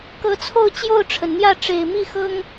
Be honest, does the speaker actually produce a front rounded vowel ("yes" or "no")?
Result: no